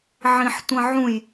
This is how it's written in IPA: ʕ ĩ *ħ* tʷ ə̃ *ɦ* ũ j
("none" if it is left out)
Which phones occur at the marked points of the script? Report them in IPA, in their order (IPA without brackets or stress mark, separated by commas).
ħ, ʕ